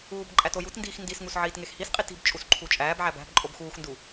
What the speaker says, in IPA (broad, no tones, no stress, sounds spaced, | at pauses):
uː b ǃʼ æ t o j u t n d iː x n d i s ŋ u s ʕ iː t ŋ e x h i s qʼ i t i̤ b t͡ʃʼ u s ǃʰ u t͡ʃʼ æː b ʕ æ b æ̤ b ǃʼ o b x uː x n d u